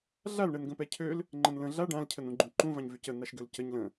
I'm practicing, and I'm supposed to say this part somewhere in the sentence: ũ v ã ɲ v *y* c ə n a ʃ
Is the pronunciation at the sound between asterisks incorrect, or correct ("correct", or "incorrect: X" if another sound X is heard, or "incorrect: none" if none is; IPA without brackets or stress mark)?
correct